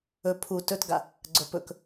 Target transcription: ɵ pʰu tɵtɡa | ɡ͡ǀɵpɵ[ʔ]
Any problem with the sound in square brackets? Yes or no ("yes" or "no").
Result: yes